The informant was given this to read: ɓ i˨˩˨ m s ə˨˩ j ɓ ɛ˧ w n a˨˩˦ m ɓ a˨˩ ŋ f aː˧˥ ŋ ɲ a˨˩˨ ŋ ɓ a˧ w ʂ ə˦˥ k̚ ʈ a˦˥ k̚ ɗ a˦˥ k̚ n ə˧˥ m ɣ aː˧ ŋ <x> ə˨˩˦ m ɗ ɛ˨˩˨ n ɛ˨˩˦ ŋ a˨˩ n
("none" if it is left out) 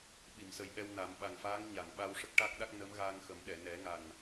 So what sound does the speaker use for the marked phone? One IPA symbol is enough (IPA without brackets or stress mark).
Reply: x